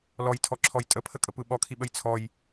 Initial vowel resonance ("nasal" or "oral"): oral